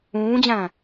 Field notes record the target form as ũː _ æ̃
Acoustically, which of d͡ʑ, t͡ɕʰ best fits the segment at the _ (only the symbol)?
d͡ʑ